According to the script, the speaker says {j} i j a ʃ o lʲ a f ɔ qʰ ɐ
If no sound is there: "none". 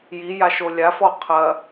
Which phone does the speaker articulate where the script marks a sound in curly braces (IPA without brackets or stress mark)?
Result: j